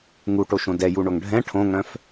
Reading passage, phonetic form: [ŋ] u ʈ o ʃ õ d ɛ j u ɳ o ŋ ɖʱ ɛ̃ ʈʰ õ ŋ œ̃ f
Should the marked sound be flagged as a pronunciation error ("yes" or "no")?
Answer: no